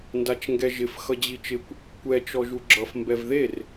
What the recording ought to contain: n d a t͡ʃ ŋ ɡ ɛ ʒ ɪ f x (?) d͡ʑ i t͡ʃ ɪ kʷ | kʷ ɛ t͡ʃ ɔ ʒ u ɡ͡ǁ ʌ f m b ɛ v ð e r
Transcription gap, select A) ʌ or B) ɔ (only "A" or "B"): A